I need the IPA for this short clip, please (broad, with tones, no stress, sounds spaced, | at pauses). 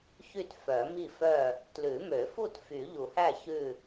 ç y˥˨ t f œ˨˩˦ m i˥˨ f œ˥˨ | t l ʉ˨˩˦ m ø˨˩˦ f u˥˨ t f y˨˩˦ ʎ u˨˩˦ h æ˥˨ ç ʉ˥˨